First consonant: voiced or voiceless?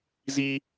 voiced